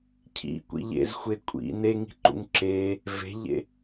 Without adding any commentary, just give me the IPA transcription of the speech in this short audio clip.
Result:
cʰ ḭ kʷ ḭ ʎ ḛ z xʷ e kʷʼ ḭ n e ŋ i̤ ǃ ṵ ŋ ǁ e | v e̤ ʎ ḛ

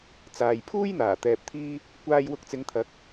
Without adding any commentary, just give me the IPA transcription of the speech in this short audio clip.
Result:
t͡s aː˨ j pʰ uː˥ j n̪ aː˨˩ t̪ ɛː˨ p̚ t̪ʰ iː˧ | kʷ aː˧ j w ʊ˧ k̚ t͡s ɪ˨˧ ŋ t̪ʰ ɐ˨˥ k̚

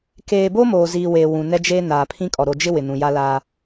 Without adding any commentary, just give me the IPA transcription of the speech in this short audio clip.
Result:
k eː˨ b o˦ m oː˨ z i˨ w e˨ w ũ˨ n ɛ˦ d͡ʒ eː˦ n aː˨ pʰ ĩ˦ kʼ ɔ˨ ɾ o˨ d͡ʒ ɪ˦ w ɪ˨ n ũ˨ j a˦ l aː˦

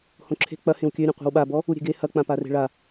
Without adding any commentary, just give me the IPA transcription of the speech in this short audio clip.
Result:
h õ ǁʰ e̤ k͡p ɐ h ẽ w kʲ ø ɾʲ ẽ qʷ e̤ w ɓ a b ɔ | u ɾʲ e̤ ɡ e h ɐ k͡p ã p a r e̤ ɭ a

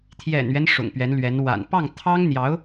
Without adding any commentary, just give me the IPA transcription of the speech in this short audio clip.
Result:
t̪ʰ j ɛ̰˨˩ n ɥ ɛ˦ n ʂ ʊ̰˨˩ ŋ p ɥ ɛ˧˥ n l ɥ ɛ˧˥ n w a̰˨˩ n p ɑ˥˩ ŋ t̪ʰ ɑ˥ ŋ n̪ j ɑ˧˥ ʊ̯

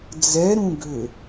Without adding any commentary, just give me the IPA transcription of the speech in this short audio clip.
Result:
d͡z ɛ ɾ ũ ɡ ʏ

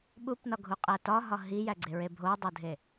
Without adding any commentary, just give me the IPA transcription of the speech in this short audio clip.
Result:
ɓ u p n ɒ ɡʱ u qʼ æ t ɒ ɦ ɒ ɦ i j æ ɡ͡ǀ e ɹ e bʱ o dˤ o dʱ e

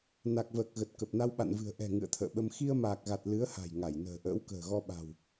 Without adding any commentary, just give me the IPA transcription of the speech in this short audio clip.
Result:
n a˨˩ k̚ v əː˨˩ k̚ ɣ ə˨˩ t̚ k ə˨˩ p̚ n a˧ w ɓ a̰˧˨ n v ɨ̤˨˩ ə̯ ʔ ɛ̤˨˩ ŋ ɨ̰˧˨ ə̯ t̪ʰ ə̰ː˧˨ ɓ ə˧ m x i˧ ə̯ m aː˨˩ k̚ ɣ a˨˩ t̚ l ɨ˨˦ ə̯ h a̤˨˩ j ŋ a˧˩ j n ə̤ː˨˩ ʔ ə̰ː˧˥ w k ə̤ː˨˩ ɣ ɔ˧ ɓ a̤˨˩ w

